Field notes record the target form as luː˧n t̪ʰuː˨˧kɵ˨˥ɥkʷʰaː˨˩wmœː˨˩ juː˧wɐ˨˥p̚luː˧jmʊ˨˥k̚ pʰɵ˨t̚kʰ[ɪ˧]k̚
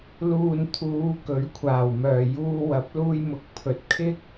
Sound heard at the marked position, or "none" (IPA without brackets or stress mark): ɪ˥